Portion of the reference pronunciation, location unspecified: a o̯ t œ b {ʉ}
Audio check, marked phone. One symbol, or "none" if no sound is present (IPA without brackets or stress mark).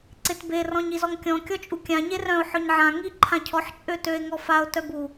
u